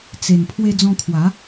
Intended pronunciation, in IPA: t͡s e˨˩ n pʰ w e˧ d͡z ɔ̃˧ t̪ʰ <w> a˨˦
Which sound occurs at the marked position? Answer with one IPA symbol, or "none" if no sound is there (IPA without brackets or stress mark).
w